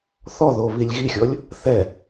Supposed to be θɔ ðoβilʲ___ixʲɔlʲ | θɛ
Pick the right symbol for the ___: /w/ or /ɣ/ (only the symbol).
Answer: ɣ